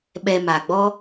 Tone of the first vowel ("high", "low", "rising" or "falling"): low